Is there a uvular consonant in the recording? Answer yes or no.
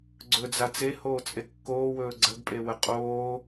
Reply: yes